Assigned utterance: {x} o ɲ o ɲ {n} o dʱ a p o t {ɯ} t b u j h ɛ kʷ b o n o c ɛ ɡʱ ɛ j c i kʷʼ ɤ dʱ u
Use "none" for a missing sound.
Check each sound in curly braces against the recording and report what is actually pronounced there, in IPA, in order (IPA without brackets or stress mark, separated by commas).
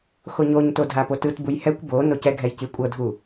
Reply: x, t, ɯ